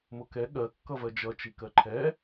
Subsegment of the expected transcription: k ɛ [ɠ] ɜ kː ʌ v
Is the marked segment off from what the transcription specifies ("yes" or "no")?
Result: no